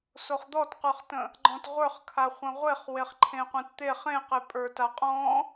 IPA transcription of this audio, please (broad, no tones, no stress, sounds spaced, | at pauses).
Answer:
s o χ d̪ ɔ t q ə˞ χ t ə̃ | ɡ͡ǃ ɔ̃ t ʁʷ ə˞ χ kʰ a χʷ ə̃ ʁʷ e χ w e χ ǃʰ ẽ qʷ ẽ t t̪ e χ ẽ q e pʼ ə˞ t a qʼ ɔ̃